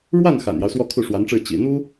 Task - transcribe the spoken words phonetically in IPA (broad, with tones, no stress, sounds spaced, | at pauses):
ɻ w a˥˩ n x a̰˨˩ n j ɑ˦ ʊ̯ s w ɔ˥˧ kʰ u˥˩ ʂ w a˧˥ n ʈ͡ʂ ɻ̩˥˩ t͡ɕ ḭ˨˩ n̪ u˥